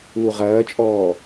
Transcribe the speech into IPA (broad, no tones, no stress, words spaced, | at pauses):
uːʁɐːt͡ʃʼɔː